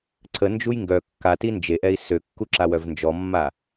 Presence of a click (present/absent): present